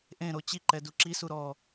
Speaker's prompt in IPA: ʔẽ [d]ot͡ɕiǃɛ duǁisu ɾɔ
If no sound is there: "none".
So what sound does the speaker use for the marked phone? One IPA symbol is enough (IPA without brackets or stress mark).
ɾ